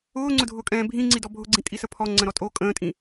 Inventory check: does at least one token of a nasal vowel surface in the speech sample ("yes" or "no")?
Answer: yes